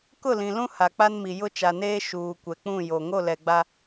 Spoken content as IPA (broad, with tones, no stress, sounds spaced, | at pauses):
k ʊ˦˨ l ĩ˨ l ũ˦ h a˨ k͡p a˦ n m i˨ j ʊ˦ t͡ʃ a˨ n eː˦ ʃ uː˨ kʷ ɛ˨ k͡p ũ˦˨ j o˨ ŋ o˦˨ l ɛ˨ ɡ͡b a˦